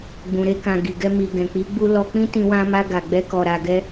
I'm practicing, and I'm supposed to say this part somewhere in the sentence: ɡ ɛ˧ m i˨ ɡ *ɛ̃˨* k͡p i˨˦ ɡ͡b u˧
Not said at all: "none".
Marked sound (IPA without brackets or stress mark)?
ɛ̃˨